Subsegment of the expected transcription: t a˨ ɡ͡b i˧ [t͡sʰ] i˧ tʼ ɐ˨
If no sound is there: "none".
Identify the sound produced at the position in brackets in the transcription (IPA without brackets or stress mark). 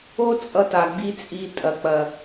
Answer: t͡sʼ